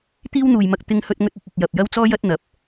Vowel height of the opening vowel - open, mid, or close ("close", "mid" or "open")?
close